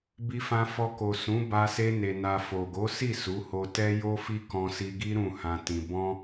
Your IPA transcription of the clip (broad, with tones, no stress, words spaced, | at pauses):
bi˧fã˧fɔ˧ko˨ sũ˨˦ba˧se˧ ne˨na˨ fo˨ɡo˨˦si˦˨ su˨˦ho˧tɛ˦ jo˦fi˦ kɔ̃˧si˧ɡi˦ ɾũ˦˨hã˧ tĩ˧ bɔ̃˦